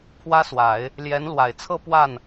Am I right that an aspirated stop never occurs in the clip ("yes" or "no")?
no